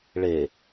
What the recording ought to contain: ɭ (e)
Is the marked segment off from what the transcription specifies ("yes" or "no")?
no